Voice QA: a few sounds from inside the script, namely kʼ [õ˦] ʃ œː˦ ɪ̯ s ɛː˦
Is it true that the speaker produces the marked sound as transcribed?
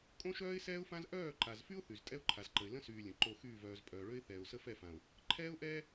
yes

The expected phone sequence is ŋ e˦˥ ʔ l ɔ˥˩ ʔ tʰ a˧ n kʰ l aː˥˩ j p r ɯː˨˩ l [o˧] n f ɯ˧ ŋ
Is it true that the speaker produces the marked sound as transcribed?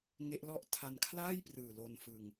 yes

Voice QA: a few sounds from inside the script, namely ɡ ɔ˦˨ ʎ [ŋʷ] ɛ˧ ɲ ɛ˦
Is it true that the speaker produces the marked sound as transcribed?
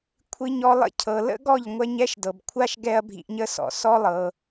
yes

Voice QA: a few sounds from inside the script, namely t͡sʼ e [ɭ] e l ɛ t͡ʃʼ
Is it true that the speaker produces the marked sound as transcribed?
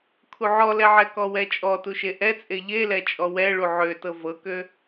no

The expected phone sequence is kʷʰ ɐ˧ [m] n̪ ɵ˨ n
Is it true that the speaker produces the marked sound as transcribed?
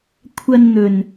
no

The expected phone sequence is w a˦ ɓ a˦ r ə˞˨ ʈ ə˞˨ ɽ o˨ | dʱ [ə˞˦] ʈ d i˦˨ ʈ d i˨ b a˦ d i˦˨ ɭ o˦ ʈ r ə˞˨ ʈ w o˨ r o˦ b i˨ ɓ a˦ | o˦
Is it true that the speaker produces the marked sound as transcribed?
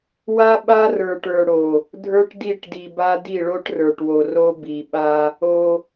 yes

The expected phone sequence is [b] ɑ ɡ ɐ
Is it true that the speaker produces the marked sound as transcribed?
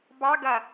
yes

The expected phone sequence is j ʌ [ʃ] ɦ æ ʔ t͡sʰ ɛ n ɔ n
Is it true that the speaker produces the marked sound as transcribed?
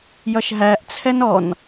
yes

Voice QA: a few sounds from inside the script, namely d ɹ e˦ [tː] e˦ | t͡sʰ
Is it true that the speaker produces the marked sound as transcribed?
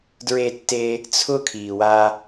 yes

